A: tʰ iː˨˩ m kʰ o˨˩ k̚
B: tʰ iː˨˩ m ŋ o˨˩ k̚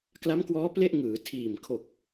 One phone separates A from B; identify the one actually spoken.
A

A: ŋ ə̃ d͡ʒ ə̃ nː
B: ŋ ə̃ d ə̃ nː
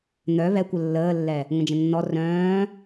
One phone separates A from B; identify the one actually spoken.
A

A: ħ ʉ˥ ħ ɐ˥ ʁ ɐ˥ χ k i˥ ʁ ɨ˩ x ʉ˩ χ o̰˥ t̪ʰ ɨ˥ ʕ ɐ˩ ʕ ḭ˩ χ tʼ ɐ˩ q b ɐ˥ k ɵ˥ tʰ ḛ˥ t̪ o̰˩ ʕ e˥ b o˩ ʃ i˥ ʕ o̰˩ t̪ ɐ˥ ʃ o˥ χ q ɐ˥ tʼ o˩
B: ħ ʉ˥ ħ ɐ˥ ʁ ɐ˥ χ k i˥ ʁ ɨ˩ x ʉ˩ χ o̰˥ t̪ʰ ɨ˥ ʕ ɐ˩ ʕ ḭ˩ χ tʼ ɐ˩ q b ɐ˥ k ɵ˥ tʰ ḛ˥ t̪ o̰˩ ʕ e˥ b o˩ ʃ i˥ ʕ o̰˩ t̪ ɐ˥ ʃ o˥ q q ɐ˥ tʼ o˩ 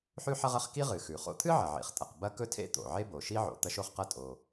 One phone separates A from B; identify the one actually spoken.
A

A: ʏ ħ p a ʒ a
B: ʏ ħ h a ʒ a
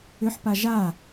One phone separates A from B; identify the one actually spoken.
A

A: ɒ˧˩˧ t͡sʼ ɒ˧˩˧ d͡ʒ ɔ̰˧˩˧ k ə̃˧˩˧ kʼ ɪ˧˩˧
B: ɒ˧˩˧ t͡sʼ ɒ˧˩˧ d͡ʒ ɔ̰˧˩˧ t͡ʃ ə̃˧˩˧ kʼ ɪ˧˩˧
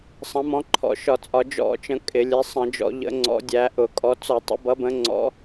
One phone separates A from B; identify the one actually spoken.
B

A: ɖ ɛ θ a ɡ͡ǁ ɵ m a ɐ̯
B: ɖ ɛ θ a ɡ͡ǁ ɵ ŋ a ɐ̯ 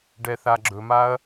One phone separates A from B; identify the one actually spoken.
A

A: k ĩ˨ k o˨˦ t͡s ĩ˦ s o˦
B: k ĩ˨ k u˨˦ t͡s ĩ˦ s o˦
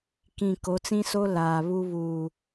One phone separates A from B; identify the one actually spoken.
A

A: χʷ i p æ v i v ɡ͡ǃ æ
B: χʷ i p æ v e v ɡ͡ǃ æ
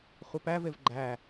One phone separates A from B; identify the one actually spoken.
B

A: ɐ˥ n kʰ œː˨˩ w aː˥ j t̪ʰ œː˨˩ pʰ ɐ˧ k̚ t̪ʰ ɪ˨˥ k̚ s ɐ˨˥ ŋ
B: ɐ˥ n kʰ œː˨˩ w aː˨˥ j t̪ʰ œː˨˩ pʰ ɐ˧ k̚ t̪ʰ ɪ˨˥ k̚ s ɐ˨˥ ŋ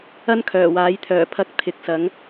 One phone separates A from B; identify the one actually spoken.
B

